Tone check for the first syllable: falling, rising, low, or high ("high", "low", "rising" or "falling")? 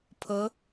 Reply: rising